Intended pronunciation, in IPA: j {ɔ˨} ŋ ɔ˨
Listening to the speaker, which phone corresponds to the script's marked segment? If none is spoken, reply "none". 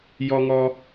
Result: ɔ˨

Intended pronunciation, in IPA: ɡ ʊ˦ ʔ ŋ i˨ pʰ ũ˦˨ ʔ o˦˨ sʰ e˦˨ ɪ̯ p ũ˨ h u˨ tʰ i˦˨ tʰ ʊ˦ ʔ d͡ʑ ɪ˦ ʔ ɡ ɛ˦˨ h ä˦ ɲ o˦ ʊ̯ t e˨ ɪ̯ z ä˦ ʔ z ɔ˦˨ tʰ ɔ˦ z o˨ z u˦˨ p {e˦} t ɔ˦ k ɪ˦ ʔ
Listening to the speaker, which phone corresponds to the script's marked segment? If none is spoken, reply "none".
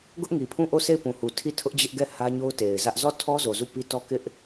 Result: i˦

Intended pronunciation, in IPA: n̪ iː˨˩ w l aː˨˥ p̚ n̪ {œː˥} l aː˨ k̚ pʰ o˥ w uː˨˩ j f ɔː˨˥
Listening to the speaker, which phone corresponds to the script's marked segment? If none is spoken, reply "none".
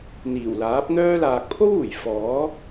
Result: œː˥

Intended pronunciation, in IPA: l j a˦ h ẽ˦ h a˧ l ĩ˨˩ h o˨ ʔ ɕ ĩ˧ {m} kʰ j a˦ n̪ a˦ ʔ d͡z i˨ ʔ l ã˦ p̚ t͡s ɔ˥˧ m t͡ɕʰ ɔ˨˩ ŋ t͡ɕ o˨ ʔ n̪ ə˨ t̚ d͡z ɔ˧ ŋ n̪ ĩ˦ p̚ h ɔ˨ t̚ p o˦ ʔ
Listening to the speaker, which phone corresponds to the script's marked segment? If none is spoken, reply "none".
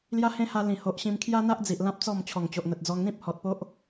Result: m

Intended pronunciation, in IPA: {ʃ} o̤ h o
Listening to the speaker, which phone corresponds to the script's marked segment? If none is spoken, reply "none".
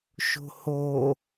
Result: ʃ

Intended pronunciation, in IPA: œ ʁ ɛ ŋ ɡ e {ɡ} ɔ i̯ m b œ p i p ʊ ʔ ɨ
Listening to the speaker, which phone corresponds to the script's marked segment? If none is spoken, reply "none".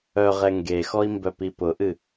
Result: x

